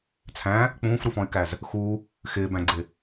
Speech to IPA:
t͡sʰ æ̃ | k͡p ũː f ɾ u f ɔ̃ y̯ k æ z | x u | x ɪː b æ̃ ɡ͡ǀ ɪ

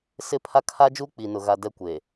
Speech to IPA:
s ɪ˦˨ pʰ a˦ kʰ a˦ d͡ʒ uː˦ k͡p i˨ n ʊ˨ ɣ a˨ d ɛ˦ kʷ e˨

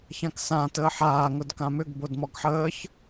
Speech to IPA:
ç ã k s ã t əː ħ aː ŋ ʊ d k ã m ʏ ɡ b o d m ɔ ɡ ħ əː ç

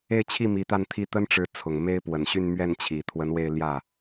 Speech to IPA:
e˥˧ ɪ̯ t͡ɕʰ i˥˩ m i˧˥ t̪ a˥˧ n t̪ʰ i˥˩ t̪ ə˥ n ʈ͡ʂ ɻ̩˧˥ t͡sʰ ʊ˨˩ ŋ m e˥ ɪ̯ p w ə˨˩ n ɕ y˥˧ n m ɥ ɛ˥˩ n t͡ɕʰ i˨˩ t̪ʰ w ə˧˥ n w e˥˧ ɪ̯ l j ä˥˩

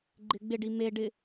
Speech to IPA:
ɡ͡ǃ ɪ ɡ͡b ɪ ɖ i m e ɖ ɪ

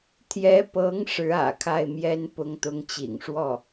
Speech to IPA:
t̪ʰ j ɛ˧˥ p ɤ˧˥ ŋ ʂ ɻ̩˧˥ ä̰˨˩ kʰ a˥˩ ɪ̯ m j ɛ˥ n p ʊ˧˥ ŋ t̪ ʊ˧˥ ŋ t͡ɕ ḭ˨˩ ŋ ʂ w ɔ˥˩

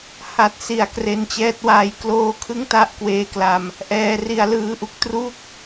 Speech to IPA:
h a˨˩ t̚ s i˩˦ a̯ k r e˧ n t͡ɕ ɛː˦˥ t̚ w aː˦˥ j k l oː˥˩ kʰ ɯ˥˩ ŋ t a˥˩ ʔ k w eː˦˥ k l a˧ m | ʔ ɛː˧ r i˧ a̯ l ɯː˧ ʔ u˦˥ k̚ t r u˥˩ k̚

